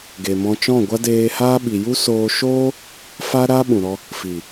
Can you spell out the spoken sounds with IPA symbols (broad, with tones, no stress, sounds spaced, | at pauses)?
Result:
ɡ e˨ m ɔ̃˧ t͡ʃ ɔ̃˦˨ ɡʷ a˦ d eː˧ h aː˦ ɓ i˨ j u˦ s oː˧ ʃ oː˦ | f a˦ ɾ a˦ ɓ ũ˨ ɾ ɔ˧ | f i˨